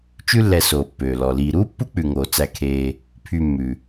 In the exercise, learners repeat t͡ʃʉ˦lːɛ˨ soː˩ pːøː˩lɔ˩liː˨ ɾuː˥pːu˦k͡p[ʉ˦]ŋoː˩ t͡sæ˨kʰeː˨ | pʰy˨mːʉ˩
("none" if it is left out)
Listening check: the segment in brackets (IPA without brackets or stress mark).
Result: ʉ˩